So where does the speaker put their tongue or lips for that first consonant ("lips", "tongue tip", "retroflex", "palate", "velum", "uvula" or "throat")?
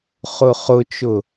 uvula